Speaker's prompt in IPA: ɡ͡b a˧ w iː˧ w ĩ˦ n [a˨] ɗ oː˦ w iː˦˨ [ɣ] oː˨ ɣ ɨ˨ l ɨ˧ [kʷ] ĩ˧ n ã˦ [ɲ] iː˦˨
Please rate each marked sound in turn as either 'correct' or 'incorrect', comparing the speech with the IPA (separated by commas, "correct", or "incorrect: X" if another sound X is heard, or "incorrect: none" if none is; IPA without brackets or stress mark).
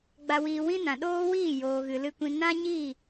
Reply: incorrect: ã˨, incorrect: j, correct, correct